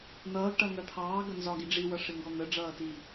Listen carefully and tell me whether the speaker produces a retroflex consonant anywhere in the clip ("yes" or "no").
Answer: yes